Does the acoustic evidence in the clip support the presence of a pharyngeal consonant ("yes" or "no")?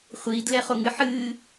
yes